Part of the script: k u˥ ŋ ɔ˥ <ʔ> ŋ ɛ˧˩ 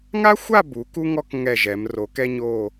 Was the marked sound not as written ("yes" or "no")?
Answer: yes